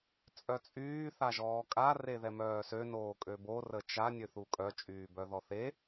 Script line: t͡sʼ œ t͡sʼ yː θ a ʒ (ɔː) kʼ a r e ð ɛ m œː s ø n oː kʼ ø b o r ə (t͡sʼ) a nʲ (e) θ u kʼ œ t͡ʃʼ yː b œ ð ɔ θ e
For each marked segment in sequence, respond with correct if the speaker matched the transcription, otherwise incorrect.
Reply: correct, incorrect, incorrect

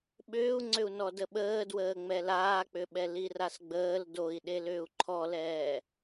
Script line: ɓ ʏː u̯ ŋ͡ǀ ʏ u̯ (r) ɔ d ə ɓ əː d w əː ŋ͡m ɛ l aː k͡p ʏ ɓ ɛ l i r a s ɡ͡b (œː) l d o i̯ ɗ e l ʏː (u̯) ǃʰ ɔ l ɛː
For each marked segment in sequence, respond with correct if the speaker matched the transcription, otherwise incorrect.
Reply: incorrect, incorrect, correct

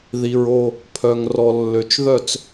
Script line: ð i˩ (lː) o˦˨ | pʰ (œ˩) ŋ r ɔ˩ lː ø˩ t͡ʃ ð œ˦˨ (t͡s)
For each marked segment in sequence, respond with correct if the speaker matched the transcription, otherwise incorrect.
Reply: incorrect, correct, correct

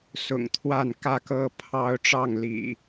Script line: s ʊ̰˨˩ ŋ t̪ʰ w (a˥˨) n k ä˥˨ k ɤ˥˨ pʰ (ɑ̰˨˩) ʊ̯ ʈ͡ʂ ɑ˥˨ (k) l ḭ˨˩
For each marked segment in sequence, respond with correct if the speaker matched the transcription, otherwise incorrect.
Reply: correct, incorrect, incorrect

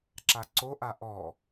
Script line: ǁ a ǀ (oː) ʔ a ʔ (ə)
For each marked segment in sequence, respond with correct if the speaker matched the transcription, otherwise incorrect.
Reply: incorrect, incorrect

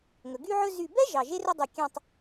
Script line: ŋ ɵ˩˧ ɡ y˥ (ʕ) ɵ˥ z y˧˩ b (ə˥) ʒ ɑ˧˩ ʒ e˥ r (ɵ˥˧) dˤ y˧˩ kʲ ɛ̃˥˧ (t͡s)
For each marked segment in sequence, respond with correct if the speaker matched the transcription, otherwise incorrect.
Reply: correct, incorrect, correct, incorrect

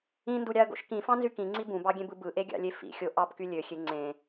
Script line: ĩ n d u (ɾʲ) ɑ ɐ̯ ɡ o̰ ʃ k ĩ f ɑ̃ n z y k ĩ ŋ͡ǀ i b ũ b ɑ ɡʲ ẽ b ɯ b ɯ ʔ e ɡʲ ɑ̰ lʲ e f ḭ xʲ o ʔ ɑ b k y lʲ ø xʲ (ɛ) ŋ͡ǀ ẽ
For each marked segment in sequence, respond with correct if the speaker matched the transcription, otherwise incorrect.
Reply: correct, incorrect

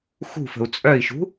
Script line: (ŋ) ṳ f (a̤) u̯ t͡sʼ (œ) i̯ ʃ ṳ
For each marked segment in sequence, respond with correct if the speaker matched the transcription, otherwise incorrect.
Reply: incorrect, incorrect, correct

